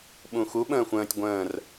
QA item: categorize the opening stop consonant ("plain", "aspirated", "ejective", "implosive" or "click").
implosive